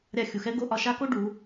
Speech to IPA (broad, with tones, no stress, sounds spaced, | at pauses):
ɾʲ a˧ xʲ u˩˧ x ɛ˥ ɡ o˧˥ ʔ ɒ˧ ʃ a˥ k o˥ ɖ u˩˧